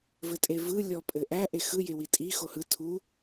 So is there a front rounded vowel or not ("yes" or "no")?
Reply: no